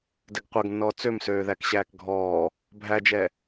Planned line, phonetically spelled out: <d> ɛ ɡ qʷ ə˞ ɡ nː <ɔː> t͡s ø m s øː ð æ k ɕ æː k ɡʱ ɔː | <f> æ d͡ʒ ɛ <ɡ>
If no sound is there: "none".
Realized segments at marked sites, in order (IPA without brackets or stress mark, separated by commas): d, ɔː, bʱ, none